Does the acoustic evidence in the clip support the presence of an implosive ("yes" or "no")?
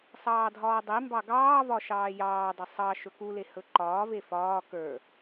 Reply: no